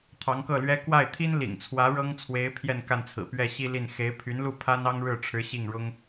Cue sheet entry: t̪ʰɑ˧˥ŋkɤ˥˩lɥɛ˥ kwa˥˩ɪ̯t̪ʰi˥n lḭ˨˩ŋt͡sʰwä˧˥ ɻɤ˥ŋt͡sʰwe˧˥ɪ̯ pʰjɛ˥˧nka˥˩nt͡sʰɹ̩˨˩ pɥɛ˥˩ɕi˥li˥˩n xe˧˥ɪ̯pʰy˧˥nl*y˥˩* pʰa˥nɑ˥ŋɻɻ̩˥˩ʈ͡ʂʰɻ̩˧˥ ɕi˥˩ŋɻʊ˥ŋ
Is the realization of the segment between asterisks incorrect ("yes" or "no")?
yes